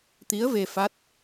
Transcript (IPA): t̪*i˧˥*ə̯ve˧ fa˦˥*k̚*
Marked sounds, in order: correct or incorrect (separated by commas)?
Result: correct, incorrect